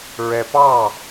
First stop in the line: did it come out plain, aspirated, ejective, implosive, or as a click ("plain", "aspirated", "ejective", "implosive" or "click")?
plain